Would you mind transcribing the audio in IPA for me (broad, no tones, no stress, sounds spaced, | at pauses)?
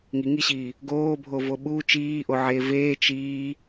ŋ i ŋ i ɕ iː | ɡ oː bʱ o v o ɓ u t͡ʃ iː ʔ o ʕ eː v eː t͡ʃ iː